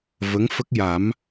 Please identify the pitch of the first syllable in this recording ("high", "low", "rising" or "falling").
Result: rising